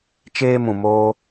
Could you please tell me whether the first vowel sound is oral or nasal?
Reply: oral